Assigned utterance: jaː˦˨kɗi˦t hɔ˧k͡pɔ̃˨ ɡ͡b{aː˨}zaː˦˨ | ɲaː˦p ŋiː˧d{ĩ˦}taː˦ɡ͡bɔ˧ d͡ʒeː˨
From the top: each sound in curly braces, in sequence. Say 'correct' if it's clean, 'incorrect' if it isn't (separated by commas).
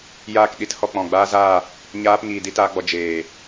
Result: incorrect, incorrect